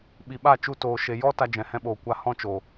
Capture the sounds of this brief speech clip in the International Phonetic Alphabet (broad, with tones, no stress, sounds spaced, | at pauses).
ɓ i˨ ɓ a˦˨ t͡ʃ u˧ t oː˨ ʃ e˨ j ɔ˦ t a˧ d͡ʒ ɛ̃˨ h ɛ̃˧ ɓ oː˨ kʷ a˧ h ɔ̃˦ t͡ʃ o˨